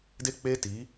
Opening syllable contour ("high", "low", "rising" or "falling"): high